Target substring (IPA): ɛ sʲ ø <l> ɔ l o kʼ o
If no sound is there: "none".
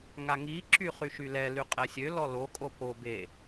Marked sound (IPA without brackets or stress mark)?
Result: l